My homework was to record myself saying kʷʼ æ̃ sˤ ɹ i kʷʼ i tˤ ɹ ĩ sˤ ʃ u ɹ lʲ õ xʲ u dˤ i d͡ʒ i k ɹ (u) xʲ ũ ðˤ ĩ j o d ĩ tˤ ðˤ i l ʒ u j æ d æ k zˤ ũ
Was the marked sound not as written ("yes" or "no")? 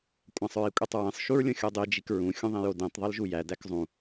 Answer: yes